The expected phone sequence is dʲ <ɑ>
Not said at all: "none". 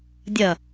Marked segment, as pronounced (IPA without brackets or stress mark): ɐ